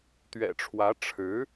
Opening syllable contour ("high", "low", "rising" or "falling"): low